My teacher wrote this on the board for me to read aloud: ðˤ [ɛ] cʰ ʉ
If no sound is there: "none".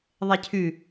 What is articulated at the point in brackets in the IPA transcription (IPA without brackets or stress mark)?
ɛ